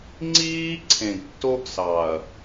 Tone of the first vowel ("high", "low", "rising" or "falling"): high